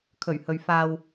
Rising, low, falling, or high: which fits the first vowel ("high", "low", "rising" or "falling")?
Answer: low